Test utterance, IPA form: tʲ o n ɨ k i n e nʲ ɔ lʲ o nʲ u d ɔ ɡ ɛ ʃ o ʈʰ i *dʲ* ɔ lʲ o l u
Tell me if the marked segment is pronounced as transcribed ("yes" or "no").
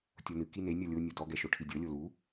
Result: yes